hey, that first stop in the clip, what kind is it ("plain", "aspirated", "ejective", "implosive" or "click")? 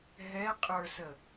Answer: ejective